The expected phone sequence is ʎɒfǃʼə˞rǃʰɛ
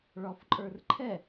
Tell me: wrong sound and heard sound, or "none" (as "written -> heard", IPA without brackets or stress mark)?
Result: ʎ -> ɭ